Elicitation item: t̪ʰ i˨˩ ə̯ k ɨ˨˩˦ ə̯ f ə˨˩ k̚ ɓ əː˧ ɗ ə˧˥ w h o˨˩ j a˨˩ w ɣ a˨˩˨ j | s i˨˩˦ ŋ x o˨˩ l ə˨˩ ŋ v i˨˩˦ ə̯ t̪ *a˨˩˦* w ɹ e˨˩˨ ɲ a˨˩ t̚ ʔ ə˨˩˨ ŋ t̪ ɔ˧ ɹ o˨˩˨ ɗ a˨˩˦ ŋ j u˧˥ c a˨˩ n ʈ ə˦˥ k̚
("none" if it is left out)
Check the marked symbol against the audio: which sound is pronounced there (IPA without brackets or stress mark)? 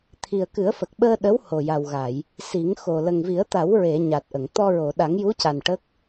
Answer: a˨˩˦